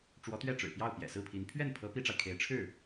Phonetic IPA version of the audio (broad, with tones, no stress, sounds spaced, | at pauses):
ʈ͡ʂ w ɔ˧˥ t̪ ɥ ɛ˥˩ ʈ͡ʂ ɻ̩˨˩ p j ɑ˥˩ ʊ̯ p j ɛ̰˨˩ s ɹ̩˥˩ pʰ i˧˥ n pʰ ɥ ɛ˥˩ n pʰ ɤ˧˥ p i˥ ʈ͡ʂ a˨ ɪ̯ kʰ e˧˥ ɪ̯ ʈ͡ʂʰ ɻ̩˥˩